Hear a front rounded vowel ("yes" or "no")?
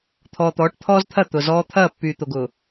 yes